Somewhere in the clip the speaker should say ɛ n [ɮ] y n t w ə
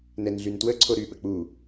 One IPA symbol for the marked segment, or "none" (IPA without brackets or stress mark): ɮ